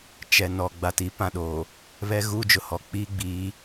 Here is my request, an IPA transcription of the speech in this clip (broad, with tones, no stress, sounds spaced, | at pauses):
t͡ʃ ɛ˨ n ɔ˨ ɡ͡b a˨ t i˨˦ p ã˨ ɗ oː˨ | β ɛ˦ ɣ uː˦ d͡ʒ ʊ˨ h ɔ˨ k͡p iː˦ ɡ͡b iː˨˦